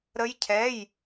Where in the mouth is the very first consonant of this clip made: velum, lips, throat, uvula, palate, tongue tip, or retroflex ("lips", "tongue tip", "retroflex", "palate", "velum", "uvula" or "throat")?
tongue tip